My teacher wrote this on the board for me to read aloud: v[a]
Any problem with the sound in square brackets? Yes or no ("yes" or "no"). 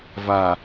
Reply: no